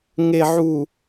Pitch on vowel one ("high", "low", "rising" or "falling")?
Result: low